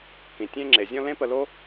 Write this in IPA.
k ĩ˨ tʲ ẽ˦ ŋ͡ǁ e˨ zʲ ɔ̃˧ l ẽ˦ p ə˧ l o˦

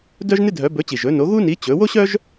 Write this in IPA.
d œ˥ ʒ n ɪ˥ dʱ œ˨˥ b ɵ˨˥ t͡ɕ i˨˩ ʒ ɵ˨˥ n o˨˥ ɣ u˥ n i˨˥ t͡ɕ ɵ˨˥ w o˥ ɕ œ˥ ʒ

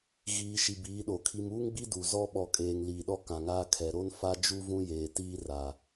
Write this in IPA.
ɣ iː˨ ʃ i˨ b iː˨˦ ɗ o˨ kʰ i˨ m uː˦ ŋ ɡ͡b i˦ d u˨ z ɔ˦ ɓ ɔ˨ kʼ eː˨ ŋ l iː˨ ɗ ɔ˦ k ã˨ ŋ aː˦ kʰ ɛ˨ ɾ o˦ n f a˦ d͡ʒ u˦ v ũ˦ j eː˨ t iː˦ r aː˨

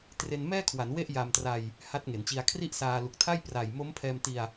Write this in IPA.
t r e˧ n m ɛː˥˩ kʰ w a˩˦ n w e˥˩ ʔ j a˧ m t r a˧ j | h a˦˥ t̚ ŋ e˩˦ n t͡ɕ i˧ a̯ kʰ r i˥˩ ʔ s aː˧ l u˨˩ k̚ tʰ a˥˩ j p r a˨˩ j m o˦˥ m pʰ ɛː˧ m t i˧ a̯

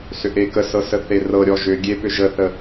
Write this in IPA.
s ʏ ʔ e k ə s ɤ s ə θ e r ɤ ɾʲ ɔ ʒ ʏ ɡʲ e p ʏ ʒ ə θ ə

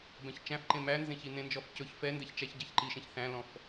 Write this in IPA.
b ɛ̃ ç t͡ʃ æ̃ f ǃ ẽ m æ n z ẽ ç i n ẽ n d͡ʒ ɔ f c ɵ ç f ɛ n d ɛ ç t͡ʃ æ ç ɟ æ ç ǃ i ʃ ẽ ç θ æ̃ l ɔ̃ f

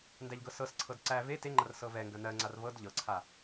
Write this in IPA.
n d æ ʎ ɡ ɤ s ɤ s ǀʰ ɤ d ǀ æ v e t e ŋ͡ǃ ɐ r s ɤ v ɛ ŋ ɡ ɐ n ɜ ŋ͡ǀ a r v ɤ d ʎ ɤ ǀʰ a

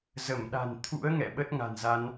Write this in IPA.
z ə˧˩ m ɗ a̤˨˩ n t̪ʰ ṵ˧˥ ə̯ ŋ ɛ̰˧˨ ɓ ə˦˥ t̚ ŋ a̤˨˩ n z a˧ n

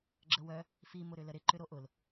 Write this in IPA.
ɡ͡ǁ ə w œ | f i m ʊ ɾ ʏ l ə ɾ ɪ ǃ ʏ ɾ o ʔ ʊ l

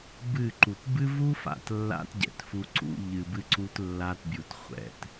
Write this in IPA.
b ɨ˦˨ ǃ u˨ t b ɨ˦ v u˦ f a̰˨ t lː a̰˦ t ɟ ɛ̰˨ t f u˦ ǀ ṵ˦ ʎ ɨ˨ b ɨ˦ ǀ u˦ t lː a˦ t bʲ u˨ t χʷ ɛ̰˨ t

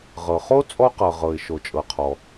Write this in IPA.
ʁ ɤ˩ χ o˥ t͡sʼ ɔ˥ q ɤ˩ ʁ ɤ˩ ɪ̯ ʃ o˩ t͡ʃʼ ɤ˩ qʰ ɔ˩

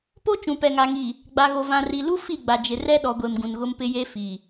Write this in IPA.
p o˦ t͡ʃ ũ˨ p ɛ˨ ŋ a˨ ŋ i˨ | ɡ͡b a˨ ɣ o˨ v ã˨ r i˨ l u˦ f i˦˨ ɡ͡b a˨ d͡ʒ ɪ˨ r ɛ˦ ɗ ɔ˨ ɡʷ e˨ m ɡ ũ˨ n ɣ ʊ˦ m p ɪ˦ j e˦ f i˨

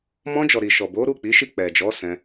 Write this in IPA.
m ɔ̃˧ d͡ʒ ɔ˨ ɾ i˨ ʃ ɔ˨ b o˨˦ ɾ u˦˨ k͡p i˨˦ ʃ i˦˨ k͡p ɛ˨ d͡ʒ ɔ˨˦ s ɛ̃˧

